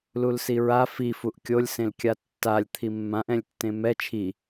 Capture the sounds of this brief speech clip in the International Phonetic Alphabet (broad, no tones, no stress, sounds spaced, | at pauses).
l u l s i ɹ a f i f u ʔ kʲ o lʲ s ẽ l kʲ a tː a lʲ t̪ʰ i mː ã ʔ ɛ̃ lʲ tː ẽ m ɛ t͡ʃʰ i